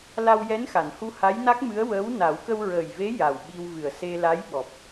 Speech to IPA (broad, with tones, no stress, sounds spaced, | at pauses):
l a˧ w j ɛ˧˥ n x a˨˩˨ n h u˧ h a˧˥ j n a˦˥ k̚ m ɨ˧˥ ə̯ w əː˧˥ w n a˨˩˦ w k ə˧ w ɹ əː˨˩ j v e˧˥ j a˨˩ w ɓ i˧ w v ɨ˨˩ ə̯ s e˧ l a˧˥ j ɓ ɔ˨˩ p̚